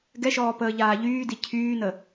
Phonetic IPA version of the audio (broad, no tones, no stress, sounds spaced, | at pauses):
ɡ ɛ ʃ ɔː p əː ʎ aː ʎ yː d i cʰ yː n ə